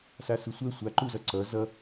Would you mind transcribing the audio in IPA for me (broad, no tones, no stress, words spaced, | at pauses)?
sasɯsʷɛ sʷaǃuzʌ ǀʌ zʌ